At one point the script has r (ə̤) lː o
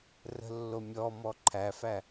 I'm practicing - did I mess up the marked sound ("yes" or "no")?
no